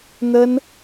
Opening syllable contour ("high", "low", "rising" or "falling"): high